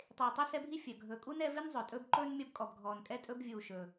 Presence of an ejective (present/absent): present